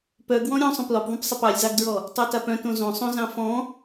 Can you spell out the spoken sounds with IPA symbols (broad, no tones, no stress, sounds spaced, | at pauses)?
p œ ɡ w ɔ̃ ɾʲ ɔ̃ sˤ œ̃ p l ɔ p ðˤ œ̃ p sˤ a p ɑ lʲ z ɑ ɡ d ɹ ɔ | tˤ œ t a p œ̃ t õ z õ sˤ õ z ɑ̃ f ɔ̃